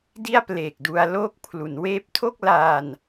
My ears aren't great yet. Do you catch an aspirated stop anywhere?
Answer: yes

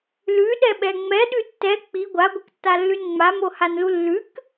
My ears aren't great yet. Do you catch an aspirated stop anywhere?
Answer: no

